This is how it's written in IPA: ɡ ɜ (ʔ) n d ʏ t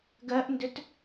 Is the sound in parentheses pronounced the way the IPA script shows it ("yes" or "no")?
yes